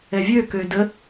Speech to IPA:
ɛ vʲ ø k ø d ə

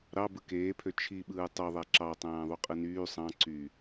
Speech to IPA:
ɾ ɑ b ɯ k eː pʰ ø t͡ʃʰ i ɓ ɯː tˤ ø ðˤ æ ǁ ɑ tˤ æ̃ː ðˤ u qʼ ɯ n yː sˤ ɑ̃ ǀ y

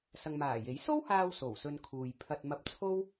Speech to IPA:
s ɐ˨ ŋ m aː˨˩ j e˨˥ j s o˥ w h aː˧ w s o˨˩ w s ɵ˧ n kʰ uː˨ j pʰ ɐ˧ t̚ m ɐ˧ p̚ t͡sʰ o˥ w

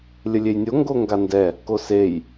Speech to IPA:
lʲ ə lʲ e j nʲ o ŋ ɡ o ŋ ɡ a n d ɛ | k o s e j

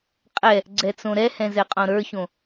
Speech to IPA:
qʼ ɛ | ɡ͡ǀ ɛ t͡s õ ɾ ɛ h ɛ̃ z ɛ qʼ õ ɾ ə˞ ç õ

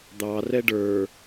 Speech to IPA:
d̪ ɑ r ɛ ɖ ə˞

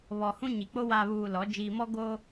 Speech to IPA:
β ɔ˨ h ũ˦ ɲ i˨ k͡p o˦ w aː˨ β uː˨ l ɔ˨˦ d͡ʒ iː˨ m ɔ˦ ɡ oː˦

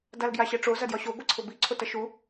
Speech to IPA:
d a l ɡ j a ɕ ɛ ʈ͡ʂ o z ɐ d j ɒ ɕ o ɡʷ i ǀʰ ʊ b i ǀʰ o t ɐ ʃ u

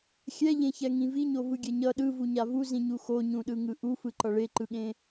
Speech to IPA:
xʲ ɛ ʎ ẽ ç ɛ ŋ ĩ v i ɲ o v ɯ ɡʲ ɛ ɲ ʌ ɗ ɯ v u ɲ a v u z ĩ ɲ u x o ɲ ũ ɗ ɯ ŋ ɯ ʔ u f ɯ ǃ ʌ ɭ e ǃ ɯ ɠ ẽ

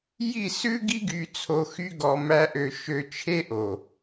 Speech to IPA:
j i˦˨ s ʉ˦ ɡ i˦ ɡ y˧ t͡sʰ o˧ x y˦ ɡ ɔ˧ m æ˦ ʔ ø˧ ʃ ø˧ t͡ʃʰ e˦ ʔ o˨

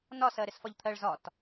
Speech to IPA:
n ɒ s ɜ ɾ ɪ s f ɒ ʎ t̪ʰ ɜ ɭ z ɒ t

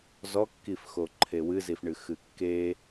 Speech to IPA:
z ɔ kː i f x o ǃʰ e w ɨ z i f ɳ ɨ x ɨ kː e

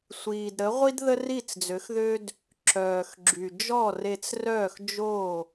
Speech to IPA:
sʷ iː˩ d ɾ ə˩˥ ʁʷ i˥ d ð ə˥ r i˥˩ t͡s d͡z ø˩˥ x ð ø˥ d | ǁ œː˩ x ɡ͡ǁ y˩ d͡ʒ ɔ˥˩ r e˧ t͡s r œː˥˩ x d͡ʒ o˥˩

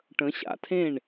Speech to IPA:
ʈ ə̃˨˦ ɕ a̰˨˩ tʰ ẽ˥˨ ɳ

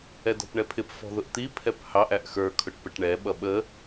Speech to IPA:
ɛ d ɔ̤ p ɳ ɛ pʰ ɪ p f ɔ̤ ð ʊ ʔ t̪ i pʰ ɛ p h ɑ ʔ æ ʔ x ə˞ kʰ ʊ ʈ p ə ʈ ɳ ɛ ɓ ʌ ɓ ə

